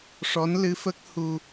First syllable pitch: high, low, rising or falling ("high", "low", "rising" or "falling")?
rising